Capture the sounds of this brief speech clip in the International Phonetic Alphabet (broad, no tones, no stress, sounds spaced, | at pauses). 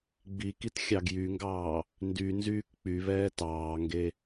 ɡ͡b i k i t xʲ ɑ ɡ j y ŋ ɡ ɑː | n d y n z yː k k͡p y β ɛː t ɑː ŋ ɡ e